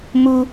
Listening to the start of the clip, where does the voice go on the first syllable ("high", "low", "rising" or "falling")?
high